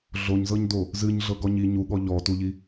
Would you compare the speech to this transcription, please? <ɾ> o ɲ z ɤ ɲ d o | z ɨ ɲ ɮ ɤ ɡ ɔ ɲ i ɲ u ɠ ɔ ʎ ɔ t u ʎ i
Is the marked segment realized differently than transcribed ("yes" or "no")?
yes